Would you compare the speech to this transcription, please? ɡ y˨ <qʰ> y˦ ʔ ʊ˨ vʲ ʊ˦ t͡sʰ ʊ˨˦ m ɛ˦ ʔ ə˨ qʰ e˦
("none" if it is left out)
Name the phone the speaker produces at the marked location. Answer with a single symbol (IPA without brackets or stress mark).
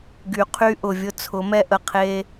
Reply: qʰ